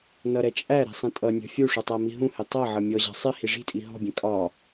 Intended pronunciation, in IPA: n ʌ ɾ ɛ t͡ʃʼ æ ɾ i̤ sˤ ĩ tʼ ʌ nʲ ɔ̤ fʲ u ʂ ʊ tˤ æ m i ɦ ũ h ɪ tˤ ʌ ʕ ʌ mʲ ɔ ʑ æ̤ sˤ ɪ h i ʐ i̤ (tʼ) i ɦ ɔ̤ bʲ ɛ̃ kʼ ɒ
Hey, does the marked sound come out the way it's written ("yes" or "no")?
yes